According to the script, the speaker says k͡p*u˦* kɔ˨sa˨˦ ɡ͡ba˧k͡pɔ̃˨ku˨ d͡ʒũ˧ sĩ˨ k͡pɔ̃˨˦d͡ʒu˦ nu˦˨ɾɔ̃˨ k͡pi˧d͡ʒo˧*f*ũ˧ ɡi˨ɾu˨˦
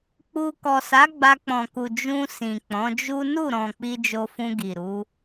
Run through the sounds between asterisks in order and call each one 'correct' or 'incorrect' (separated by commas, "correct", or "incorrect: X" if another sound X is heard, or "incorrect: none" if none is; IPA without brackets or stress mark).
incorrect: u˧, correct